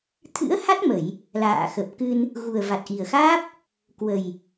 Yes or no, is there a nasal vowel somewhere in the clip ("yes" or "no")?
no